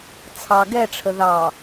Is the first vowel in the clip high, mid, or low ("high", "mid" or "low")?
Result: low